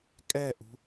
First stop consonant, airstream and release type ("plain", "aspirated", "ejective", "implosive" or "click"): ejective